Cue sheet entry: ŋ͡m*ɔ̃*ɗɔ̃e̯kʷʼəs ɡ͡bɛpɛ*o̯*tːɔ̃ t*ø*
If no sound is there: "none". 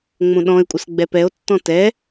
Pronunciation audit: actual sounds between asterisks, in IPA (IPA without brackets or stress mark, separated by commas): õ, o̯, ɛ